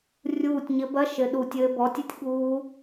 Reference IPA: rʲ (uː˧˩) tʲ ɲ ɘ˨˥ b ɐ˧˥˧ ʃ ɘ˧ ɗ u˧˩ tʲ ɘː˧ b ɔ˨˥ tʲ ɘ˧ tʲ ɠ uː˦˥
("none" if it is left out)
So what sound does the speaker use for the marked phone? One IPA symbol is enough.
uː˧˩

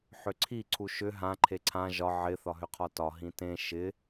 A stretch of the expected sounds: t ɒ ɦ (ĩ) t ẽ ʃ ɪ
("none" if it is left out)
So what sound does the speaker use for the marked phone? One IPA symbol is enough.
ĩ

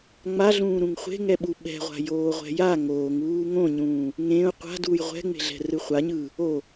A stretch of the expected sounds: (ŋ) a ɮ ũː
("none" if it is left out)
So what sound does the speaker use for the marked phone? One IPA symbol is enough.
ŋ͡m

